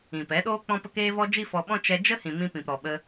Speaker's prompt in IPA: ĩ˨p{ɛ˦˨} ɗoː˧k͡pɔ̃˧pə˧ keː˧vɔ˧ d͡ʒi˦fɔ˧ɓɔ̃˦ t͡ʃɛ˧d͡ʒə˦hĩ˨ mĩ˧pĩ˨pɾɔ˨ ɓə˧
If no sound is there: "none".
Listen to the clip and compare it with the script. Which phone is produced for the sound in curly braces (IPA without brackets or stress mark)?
ɛ˨˦